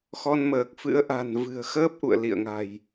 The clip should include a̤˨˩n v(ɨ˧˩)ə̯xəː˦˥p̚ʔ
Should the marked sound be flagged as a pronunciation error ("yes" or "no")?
yes